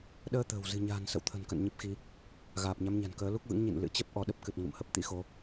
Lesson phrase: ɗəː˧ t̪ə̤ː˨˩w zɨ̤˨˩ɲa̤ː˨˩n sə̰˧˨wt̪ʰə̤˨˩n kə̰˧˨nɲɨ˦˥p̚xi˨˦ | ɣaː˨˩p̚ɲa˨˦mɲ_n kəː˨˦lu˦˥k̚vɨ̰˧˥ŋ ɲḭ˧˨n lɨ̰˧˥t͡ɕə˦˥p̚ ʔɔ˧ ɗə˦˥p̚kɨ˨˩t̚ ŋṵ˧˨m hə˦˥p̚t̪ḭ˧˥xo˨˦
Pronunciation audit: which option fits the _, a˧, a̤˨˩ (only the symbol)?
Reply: a̤˨˩